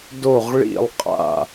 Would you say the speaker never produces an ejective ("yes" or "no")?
no